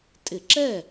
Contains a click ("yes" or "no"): yes